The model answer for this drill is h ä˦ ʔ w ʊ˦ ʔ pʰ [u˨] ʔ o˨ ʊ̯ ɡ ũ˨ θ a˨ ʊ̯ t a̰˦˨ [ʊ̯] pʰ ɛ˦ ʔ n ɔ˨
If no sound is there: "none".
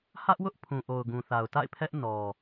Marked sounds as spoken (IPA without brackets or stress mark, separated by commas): ũ˨, ɪ̯